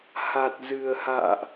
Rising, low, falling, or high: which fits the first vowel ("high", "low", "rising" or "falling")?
low